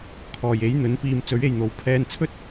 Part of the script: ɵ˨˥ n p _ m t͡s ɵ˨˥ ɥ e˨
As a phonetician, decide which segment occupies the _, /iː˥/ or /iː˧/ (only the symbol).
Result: iː˧